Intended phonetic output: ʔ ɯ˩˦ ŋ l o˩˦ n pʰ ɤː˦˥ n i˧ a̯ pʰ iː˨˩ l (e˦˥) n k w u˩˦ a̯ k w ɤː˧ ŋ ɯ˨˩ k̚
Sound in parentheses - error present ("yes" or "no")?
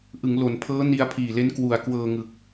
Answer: no